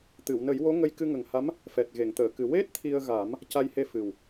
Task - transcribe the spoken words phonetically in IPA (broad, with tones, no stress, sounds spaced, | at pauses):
t̪ ɨ˨˩˨ w n ə˨˩˦ j w o˧˥ ŋ ə˧ j k ɨ˧ ŋ ə˨˩ ŋ h a˧˥ m | f ɛ˨˩ t̚ ɣ e˨˩˨ ŋ t̪ əː˨˩˨ k ɨ˨˩ w e˦˥ t̚ t̪ʰ i˧ ə̯ ɣ a˨˩˦ m | c a˧ j h e˧ f ɨ˨˩ w